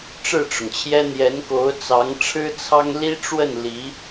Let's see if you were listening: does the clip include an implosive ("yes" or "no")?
no